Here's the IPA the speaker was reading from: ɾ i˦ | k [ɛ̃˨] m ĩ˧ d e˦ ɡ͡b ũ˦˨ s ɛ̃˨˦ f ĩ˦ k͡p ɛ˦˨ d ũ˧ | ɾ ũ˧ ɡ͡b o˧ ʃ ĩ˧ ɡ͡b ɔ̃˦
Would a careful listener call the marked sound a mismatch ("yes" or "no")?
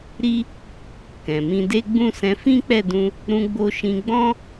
no